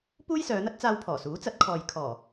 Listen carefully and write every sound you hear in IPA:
puː˥jsœː˨˧n̪ɐ˥t̚t͡saː˧w pʰɔː˨˩suː˨˥t͡sɐ˨˥t̚kʰɔː˨j kʰɔː˨˩

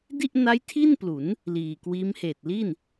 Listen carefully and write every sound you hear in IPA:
di˥˩ʔna˦˥j tʰi˥˩nplu˩˦n | liː˨˩kwiː˦˥m heː˨˩t̚li˥˩n

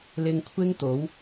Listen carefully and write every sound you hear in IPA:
lɪ˧ŋkʷʰɪ˥ŋt̪o˨˥w

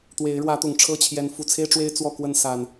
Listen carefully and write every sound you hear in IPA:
t̪we˨˦ɪ̯ɻwä˨˦t̪ʊ˨˩ŋ ʈ͡ʂʰɤ˥˨t͡ɕʰjɛ˨˦n fu˨˩t͡sʰe˦ɪ̯ʈ͡ʂwe˦ɪ̯ t͡swɔ˥˨kwə˥˨n sa˨˩n

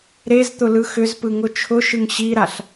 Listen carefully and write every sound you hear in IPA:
ɾezt̪ʊ lɯxʏzpɯ ŋʊt͡ʃʰʊʃɯŋ ɕiɾaɬ

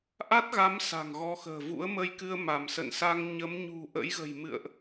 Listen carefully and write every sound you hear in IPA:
ʔa˦˥t̚ɣa˨˦m sa̤˨˩ŋɣɔ˨˦ xə̤ː˨˩vṵ˧˥ə̯mə˧jkɨ˧ə̯ ma˧˩msə̰˧˨nsa˧ŋ ɲə˨˦mɲṳ˨˩ ʔə̰˧˥jɣə̤˨˩j mɨ̰˧˨ə̯ʔ

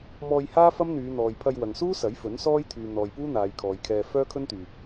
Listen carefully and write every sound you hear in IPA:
mɔː˧jhaː˥ fɐ˥mn̪yː˨˧ n̪ɔː˨jpʰɐ˧j wɐ˨ŋsuː˥ sɐ˨˥jfɵ˨˥nsɔː˥j t̪ʰyː˨ n̪ɔː˨jpuː˥ n̪aː˨˧j kʰɔː˨˧jkʰɛː˧ fœː˥kʰɵ˥nt̪yː˨p̚

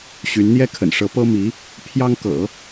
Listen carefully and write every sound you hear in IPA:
ɕy˧˥nn̪jɛ˥ kʰə̰˨˩nʂɤ˧˥ pɤ˥mi˧˥ | pʰjɑ˥ŋkɤ̰˨˩˦

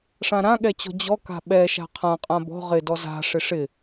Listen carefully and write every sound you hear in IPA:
ʂãɾãɠɛt͡ɕɔ̤ d͡ʑɔka̤ ɓɛʃa̤ qʰãqʼã bɔ̤ ʁɪdɔ za̤ ʂɪʂɪ

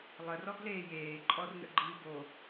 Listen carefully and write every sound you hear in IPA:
lˠər ɔɡleːjeː ǃʼɔrnə̰ɡ͡ǃi bo

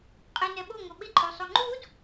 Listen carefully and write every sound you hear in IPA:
qʼenɛɓo ŋoɓɪ ǃʼosˤoŋ͡ǃud

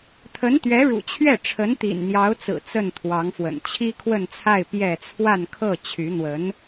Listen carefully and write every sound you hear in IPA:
t̪ʰə˧˥nt̪ɥɛ˧˥ɻṵ˨˩ t͡ɕʰɥɛ˥˩ ʈ͡ʂʰə˧˥nt̪ḭ˨˩nn̪jɑ˧˥ʊ̯t͡sɹ̩˨˩ t͡sə˥˩nt̪ʰwɑ˧˥ŋfwə̰˨˩n t͡ɕʰi˥kʰwə˥˧nt͡sʰa˥˧ɪ̯ pjɛ˥˧ t͡sʰwa˥˧nkʰɤ˥˩ t͡ɕʰy˧˥n̪wə˧˥n

